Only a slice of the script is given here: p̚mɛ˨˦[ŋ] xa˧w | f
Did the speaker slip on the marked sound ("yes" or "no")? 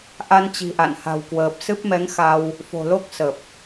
no